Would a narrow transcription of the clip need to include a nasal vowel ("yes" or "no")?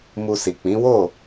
yes